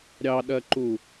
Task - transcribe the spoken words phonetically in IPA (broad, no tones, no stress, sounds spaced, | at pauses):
ɾʲ ɑ ɗ ɜ ǃ u